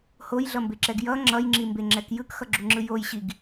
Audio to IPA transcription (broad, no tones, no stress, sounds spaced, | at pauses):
h o j ɮ ʌ m b e ǁ ɛ ɡ j ʌ ŋ͡ǁ ʌ j ŋ͡ǁ i m b e ŋ͡ǁ ɛ k j ɯ k x ʌ ɡ͡ǁ u ŋ͡ǁ ɯ j o j ɕ i ɡ